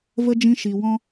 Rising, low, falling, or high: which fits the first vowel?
high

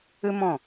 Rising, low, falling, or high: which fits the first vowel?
high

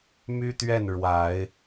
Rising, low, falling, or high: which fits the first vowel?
high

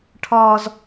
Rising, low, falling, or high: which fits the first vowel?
high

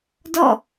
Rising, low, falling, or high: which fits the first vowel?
falling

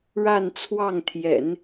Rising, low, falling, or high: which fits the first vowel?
falling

